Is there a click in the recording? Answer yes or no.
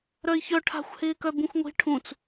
no